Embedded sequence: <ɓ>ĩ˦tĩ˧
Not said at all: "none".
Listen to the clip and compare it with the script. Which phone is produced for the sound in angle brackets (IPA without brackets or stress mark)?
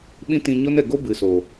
ɓ